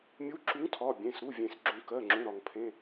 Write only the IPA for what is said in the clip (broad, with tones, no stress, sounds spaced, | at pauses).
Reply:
mʲ u˨˥ ǁ u˨˥ ŋ tʰ ɒ˩˧˩ bʲ ẽ˩˧˩ s ɾ u˩˧˩ vʲ ẽ˩ s ɡ͡ǁ ũ˩ k ɜ˩˧˩ ŋ͡ǁ ũ˩˧˩ ɾ ɒ˩ ŋ pʰ ẽ˩˧˩